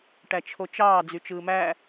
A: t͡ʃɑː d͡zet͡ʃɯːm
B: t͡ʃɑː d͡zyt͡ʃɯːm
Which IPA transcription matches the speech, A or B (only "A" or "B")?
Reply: B